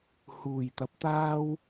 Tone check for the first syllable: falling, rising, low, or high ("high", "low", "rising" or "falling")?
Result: low